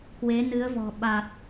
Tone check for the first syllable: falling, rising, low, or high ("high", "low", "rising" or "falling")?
rising